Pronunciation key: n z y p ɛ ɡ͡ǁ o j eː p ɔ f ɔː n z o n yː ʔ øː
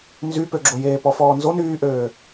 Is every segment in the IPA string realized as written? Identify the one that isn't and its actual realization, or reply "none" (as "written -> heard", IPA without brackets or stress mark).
ɛ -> ø